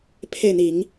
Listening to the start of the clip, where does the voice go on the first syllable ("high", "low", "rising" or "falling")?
falling